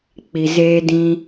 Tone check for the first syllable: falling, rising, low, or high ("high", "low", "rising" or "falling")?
low